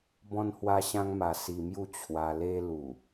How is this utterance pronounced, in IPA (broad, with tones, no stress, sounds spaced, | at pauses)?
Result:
b ɔ̃˧ n h w a˧ ɕ ã˧ ŋ m a˧ s i˧ m j u˥˧ t͡ɕʰ w a˧ l e˧ l u˨˩